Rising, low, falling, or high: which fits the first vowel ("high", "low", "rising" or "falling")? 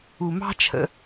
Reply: low